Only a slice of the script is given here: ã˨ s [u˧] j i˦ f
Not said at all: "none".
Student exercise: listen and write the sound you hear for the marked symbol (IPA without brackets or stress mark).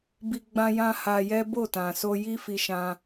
o˧